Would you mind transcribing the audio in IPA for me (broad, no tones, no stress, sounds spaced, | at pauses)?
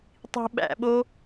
tˤ i̤ ɓ æ̰ ɓ o